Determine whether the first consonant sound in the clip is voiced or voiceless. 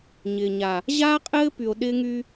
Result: voiced